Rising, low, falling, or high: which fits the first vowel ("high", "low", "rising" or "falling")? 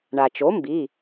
low